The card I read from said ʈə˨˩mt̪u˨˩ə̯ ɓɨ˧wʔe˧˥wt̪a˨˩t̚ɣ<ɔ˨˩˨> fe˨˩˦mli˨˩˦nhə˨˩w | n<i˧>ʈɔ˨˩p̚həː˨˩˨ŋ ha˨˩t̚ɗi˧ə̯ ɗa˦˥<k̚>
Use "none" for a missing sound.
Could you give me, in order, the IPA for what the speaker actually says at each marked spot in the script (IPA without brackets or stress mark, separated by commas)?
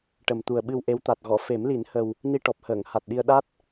ɔ˨˩˨, i˧, t̚